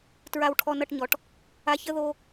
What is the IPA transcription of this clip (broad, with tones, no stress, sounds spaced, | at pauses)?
t ɹ a˧ w ʈʰ ɔ˧ n ʌ˧ ʈ ɲ ɔ˩ ʈ | a˧ ç ə˥ ð o˧